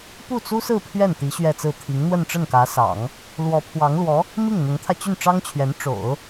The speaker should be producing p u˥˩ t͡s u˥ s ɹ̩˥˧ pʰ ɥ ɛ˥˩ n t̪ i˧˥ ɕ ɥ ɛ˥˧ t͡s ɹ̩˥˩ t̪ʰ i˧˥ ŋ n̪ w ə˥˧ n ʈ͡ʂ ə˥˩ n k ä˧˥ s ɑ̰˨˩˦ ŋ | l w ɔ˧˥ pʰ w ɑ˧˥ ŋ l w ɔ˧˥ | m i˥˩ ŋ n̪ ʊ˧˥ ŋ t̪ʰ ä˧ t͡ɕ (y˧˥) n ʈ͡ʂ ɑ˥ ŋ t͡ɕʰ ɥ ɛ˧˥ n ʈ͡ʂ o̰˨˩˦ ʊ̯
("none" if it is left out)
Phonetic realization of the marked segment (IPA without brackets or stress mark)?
y˥˩